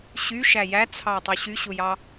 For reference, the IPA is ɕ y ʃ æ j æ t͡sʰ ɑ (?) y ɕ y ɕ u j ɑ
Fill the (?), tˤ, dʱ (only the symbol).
tˤ